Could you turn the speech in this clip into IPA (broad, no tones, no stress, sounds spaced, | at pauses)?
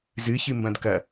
z ɨ ç ɨ m b ɐ̃ d k ɐ